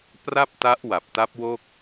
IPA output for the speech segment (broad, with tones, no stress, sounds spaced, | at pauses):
p r a˥˩ p̚ t a˦˥ ʔ w a˨˩ p̚ t a˦˥ p̚ w o˥˩ k̚